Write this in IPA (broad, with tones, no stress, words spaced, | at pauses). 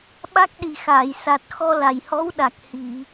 ɓa˦˥k̚ɗi˨˩xaː˨˩˨j sa˨˩t̚ xɔ˧la˨˩jhɔ˧˥wɗa˨˩k̚ hi˨˩˨